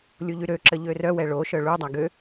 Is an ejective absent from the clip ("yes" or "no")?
yes